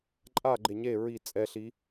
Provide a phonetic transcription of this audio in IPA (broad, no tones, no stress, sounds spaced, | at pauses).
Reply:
ǃʼ a ɡ͡ǃ e ɲ e ɹ i t͡sʼ ɛ ɬ i